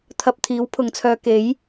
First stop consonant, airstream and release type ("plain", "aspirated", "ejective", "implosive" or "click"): aspirated